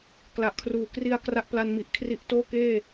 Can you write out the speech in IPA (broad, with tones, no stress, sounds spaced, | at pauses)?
k l a˨˩ ʔ kʰ r uː˨˩ k r i˧ a̯ k r a˦˥ ʔ p l a˧ n m i˨˩ ʔ kʰ r i˦˥ ʔ t oː˥˩ k eː˥˩